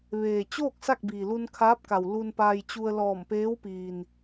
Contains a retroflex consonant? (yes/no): no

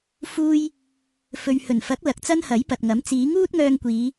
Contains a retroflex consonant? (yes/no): no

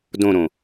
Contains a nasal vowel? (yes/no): yes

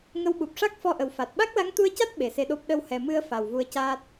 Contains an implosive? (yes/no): yes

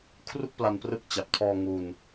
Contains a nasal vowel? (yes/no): no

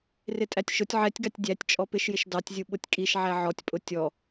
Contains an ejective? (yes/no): yes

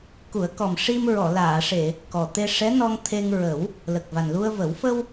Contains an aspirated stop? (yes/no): yes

